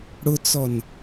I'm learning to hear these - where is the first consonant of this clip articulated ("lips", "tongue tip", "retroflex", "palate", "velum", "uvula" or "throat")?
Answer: retroflex